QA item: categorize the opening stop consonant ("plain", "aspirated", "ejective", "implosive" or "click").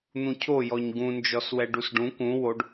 aspirated